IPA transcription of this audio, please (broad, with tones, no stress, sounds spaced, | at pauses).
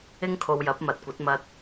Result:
ɪ˥ ŋ kʰ o˧ w j ɐ˨˥ p̚ m ɐ˨ t̚ kʷ ɐ˨˥ t̚ m ɐ˧ t̚